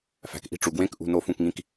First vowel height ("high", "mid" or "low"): low